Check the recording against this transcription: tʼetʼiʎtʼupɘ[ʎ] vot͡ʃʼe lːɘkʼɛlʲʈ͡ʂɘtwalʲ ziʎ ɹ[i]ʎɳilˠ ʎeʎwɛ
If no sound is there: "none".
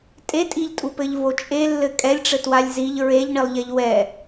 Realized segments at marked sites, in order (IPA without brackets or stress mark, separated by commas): ʎ, e